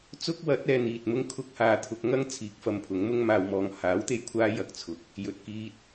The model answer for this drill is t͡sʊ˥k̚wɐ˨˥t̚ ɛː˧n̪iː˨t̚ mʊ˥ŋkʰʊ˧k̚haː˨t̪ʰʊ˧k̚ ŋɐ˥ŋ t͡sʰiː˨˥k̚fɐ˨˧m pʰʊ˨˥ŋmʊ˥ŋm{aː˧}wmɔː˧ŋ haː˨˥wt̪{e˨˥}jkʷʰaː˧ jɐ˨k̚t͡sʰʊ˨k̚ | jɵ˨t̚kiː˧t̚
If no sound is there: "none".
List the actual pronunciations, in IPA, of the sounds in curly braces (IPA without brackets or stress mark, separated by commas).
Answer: aː˧, e˨